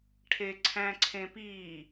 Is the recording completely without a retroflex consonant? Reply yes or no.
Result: no